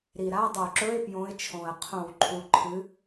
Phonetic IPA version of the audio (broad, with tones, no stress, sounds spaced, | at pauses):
ɾ i˨˩ ɾ a˧˥˧ dˤ o˧˩˧ ǁ ɵ˧˥˧ ɪ̯ p j õ˨˦ ɪ̯ t͡ʃʰ õ˨˩ ə̯ qʰ õ˧˩˧ w ǃʰ u˨˩ ǃʰ ɨ˨˦